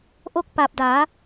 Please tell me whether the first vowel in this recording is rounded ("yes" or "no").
yes